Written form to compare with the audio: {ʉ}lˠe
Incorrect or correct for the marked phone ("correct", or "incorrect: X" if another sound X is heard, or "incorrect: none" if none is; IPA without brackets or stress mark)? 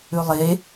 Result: correct